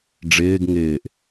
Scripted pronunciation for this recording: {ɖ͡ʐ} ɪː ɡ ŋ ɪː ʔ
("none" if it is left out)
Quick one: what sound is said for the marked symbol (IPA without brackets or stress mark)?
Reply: ɖ͡ʐ